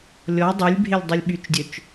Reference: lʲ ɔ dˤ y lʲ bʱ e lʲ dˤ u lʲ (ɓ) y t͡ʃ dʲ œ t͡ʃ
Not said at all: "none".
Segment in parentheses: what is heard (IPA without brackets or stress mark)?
ɓ